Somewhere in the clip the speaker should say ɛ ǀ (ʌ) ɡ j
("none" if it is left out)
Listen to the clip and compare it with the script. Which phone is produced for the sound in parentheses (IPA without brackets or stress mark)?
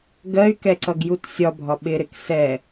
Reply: ʌ